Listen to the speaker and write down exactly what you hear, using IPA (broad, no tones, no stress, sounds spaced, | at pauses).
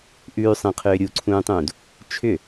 ʔ ʉː sˤ ẽ qʰ ʏː ɾʲ u ǀʰ ũː tˤ ũː d | t͡ʃʰ ʏ